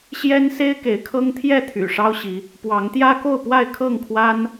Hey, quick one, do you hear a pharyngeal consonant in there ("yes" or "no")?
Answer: no